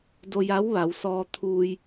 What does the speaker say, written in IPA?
do˧ja˧˥wʋa˩˧w sɔː˧t̪ʰuː˧j

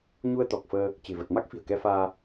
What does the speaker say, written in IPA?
ɲu˧ə̯t̪ɔ˨˩k̚fəː˧ | t͡ɕe̤˨˩və˨˩t̚ ma˦˥k̚fi̤˨˩ə̯kɛ˧faː˧

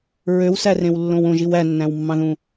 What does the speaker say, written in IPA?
ɹøwsærẽwlːõw õʒiw ænːæ̃wmːɑ̃ðũ

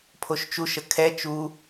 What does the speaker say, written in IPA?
pʰoʃt͡ʃuʃə kʰɛ t͡ʃu

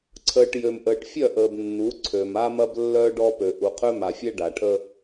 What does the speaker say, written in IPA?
ǀʰəː˨ʈ jø˨mʔəː˨ʈfʲœ˦˨ʔəː˨b nːu˨˦ǀʰø˨ma˦ mɐ˦blːœː˦ɖɔ˦pø˨ ʔu˨qʰø˦ma˨fʲɛ˦ ɖa˨ʈʰə˦

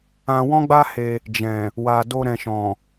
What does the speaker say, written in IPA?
ã˧wɔ̃˦ɡ͡ba˦he˧ | d͡ʒɛ̃˨ | wa˨do˧ ɾɛ̃˨ʃɔ̃˨

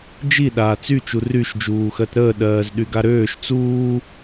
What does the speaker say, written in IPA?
d͡ʒi ɗaːt͡sy t͡ʃuryʃ d͡ʒuːxɜtɾəː ɗɜːzɗyɡaɾøːʃ t͡suː

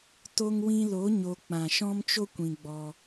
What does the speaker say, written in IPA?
to˧ŋwĩ˧lo˨˦ ɲo˧ k͡pã˨ʃɔ̃˦mt͡ʃo˦ kʷĩ˧ɡ͡bɔ˧

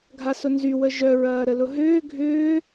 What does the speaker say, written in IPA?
ɡʱasʊnzy wəʒœ ɹɐːɾəlʊɦʏː ɡʱʏː

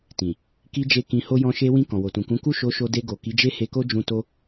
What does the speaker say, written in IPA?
tĩ˨ | ki˧d͡ʒe˧ kĩ˧ho˦ jɔ̃˧ʃe˧wĩ˧ kɔ̃˨wo˨tũ˨kũ˨˦ ku˦˨ʃo˧ʃo˧ de˧ɡo˨ ki˨˦d͡ʒe˦he˧ko˦ d͡ʒũ˧ to˦

